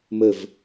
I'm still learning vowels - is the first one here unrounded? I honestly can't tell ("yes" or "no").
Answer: yes